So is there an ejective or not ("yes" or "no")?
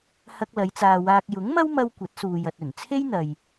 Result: no